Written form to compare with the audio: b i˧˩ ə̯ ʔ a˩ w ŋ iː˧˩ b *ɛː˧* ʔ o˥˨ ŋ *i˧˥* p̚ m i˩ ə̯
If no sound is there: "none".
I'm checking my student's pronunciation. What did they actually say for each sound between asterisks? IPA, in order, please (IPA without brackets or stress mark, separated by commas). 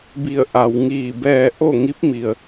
ɛː˧, i˧˥